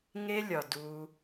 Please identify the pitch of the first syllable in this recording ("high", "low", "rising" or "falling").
high